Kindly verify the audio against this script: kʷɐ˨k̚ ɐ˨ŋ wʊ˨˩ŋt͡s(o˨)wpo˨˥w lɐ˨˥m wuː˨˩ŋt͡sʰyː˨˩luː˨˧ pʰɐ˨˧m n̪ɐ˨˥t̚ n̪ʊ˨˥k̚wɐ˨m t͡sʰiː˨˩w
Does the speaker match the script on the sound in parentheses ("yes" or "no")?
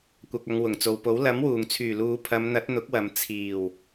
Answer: yes